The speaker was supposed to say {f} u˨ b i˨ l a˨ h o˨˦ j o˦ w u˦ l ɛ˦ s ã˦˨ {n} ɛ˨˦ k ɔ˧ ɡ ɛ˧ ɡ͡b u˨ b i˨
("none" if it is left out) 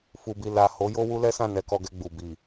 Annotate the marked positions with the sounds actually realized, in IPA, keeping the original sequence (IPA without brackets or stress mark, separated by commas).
f, n